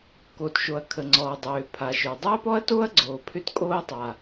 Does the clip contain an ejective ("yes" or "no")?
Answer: yes